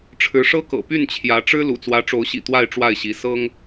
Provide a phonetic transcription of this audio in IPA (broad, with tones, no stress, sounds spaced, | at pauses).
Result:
ʈ͡ʂʰ ɻ̩˨˦ ʂ ɤ˦ k ɤ̰˨˩ p y˥˨ n t͡ɕʰ j ä˨˦ ʈ͡ʂ ɻ̩˦ l ṵ˨˩ t͡s w ä˨˦ ʈ͡ʂ o˨˦ ʊ̯ ɕ ḭ˨˩ t̪ w a˥˨ ɪ̯ ʈ͡ʂ w a˥˨ ɪ̯ ɕ i˨˦ s ɤ˦ ŋ